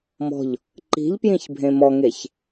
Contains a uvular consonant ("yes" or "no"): no